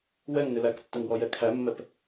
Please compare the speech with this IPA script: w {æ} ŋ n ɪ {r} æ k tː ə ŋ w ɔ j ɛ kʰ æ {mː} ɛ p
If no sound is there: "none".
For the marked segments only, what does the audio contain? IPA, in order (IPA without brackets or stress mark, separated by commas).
ɛ, l, mː